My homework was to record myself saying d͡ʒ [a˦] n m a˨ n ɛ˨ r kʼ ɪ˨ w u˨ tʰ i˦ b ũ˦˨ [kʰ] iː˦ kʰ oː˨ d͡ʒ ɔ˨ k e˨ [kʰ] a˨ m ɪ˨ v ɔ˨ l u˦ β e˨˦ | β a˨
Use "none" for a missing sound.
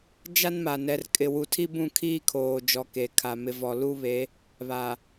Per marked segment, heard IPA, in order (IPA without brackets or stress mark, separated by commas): a˦, kʰ, kʰ